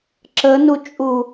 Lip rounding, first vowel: unrounded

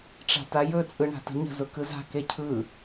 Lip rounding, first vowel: unrounded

